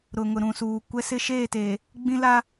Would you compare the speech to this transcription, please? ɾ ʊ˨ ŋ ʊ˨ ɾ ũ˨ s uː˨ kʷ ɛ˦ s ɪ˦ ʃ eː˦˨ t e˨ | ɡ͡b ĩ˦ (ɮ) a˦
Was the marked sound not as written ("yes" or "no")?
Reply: yes